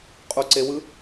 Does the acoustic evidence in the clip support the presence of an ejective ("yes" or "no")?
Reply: yes